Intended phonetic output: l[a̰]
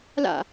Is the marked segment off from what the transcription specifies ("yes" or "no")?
no